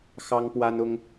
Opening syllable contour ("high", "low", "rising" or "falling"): high